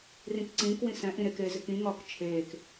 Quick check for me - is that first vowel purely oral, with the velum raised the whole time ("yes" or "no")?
no